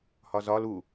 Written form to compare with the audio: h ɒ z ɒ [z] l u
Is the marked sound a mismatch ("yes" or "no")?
yes